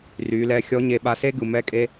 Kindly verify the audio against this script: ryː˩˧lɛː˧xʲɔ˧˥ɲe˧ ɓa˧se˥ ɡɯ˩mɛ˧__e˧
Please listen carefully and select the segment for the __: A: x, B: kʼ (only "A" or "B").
B